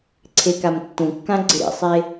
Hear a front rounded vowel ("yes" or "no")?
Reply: no